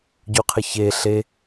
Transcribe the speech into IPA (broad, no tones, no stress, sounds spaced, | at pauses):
ɟ u qʰ ɪ ç e ɬ e